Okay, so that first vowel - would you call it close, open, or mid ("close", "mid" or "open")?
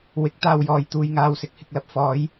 close